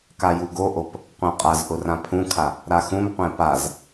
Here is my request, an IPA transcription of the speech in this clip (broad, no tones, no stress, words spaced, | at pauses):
kajuɡoʔop | qʷãqʼazʔʊ rãpʰũkʰa | ɾaxũmqʷɛ̃ paz